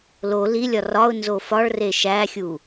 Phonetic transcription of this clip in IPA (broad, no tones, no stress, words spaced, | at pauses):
lo lilʲɒ rɒʊ̯nzo fɒɭre ʃæxʲu